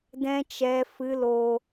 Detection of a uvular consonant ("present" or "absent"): absent